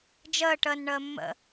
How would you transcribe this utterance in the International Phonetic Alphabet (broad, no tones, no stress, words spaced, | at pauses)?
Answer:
d͡ʒəː ʈəːnɳəːmːə̰